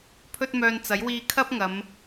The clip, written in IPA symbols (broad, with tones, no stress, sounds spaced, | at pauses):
pʰ ɵ˥ t̚ m œː˧ n t͡s ɐ˨˥ j w iː˧ kʰ ɐ˥ p̚ ŋ ɐ˨˧ m